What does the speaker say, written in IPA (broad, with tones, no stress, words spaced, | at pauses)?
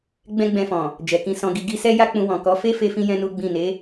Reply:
ɡ͡bɛ̃˦ɡ͡bɛ̃˧fɔ̃˨ | d͡ʒɛ˨kĩ˧sɔ̃˧ɡi˧ ɡi˧sɛ˦ja˦ k͡pũ˧wɔ̃˨ kɔ˨˦fe˦ fe˦fĩ˦jɛ̃˦ nu˦ɡ͡bĩ˦˨ ne˨˦